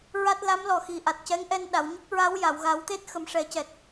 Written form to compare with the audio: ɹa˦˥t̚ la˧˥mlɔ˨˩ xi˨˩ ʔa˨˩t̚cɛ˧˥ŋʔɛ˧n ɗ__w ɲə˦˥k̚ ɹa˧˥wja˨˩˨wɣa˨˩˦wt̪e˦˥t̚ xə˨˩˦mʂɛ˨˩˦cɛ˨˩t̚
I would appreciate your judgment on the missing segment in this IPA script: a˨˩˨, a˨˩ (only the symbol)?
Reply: a˨˩˨